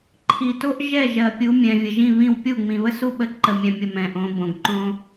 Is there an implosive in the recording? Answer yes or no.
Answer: yes